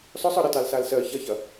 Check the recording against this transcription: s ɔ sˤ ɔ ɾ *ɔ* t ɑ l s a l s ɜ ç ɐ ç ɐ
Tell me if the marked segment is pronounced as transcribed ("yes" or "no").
no